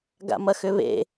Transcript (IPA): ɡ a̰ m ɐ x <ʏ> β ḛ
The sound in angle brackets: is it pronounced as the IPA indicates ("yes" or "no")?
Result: yes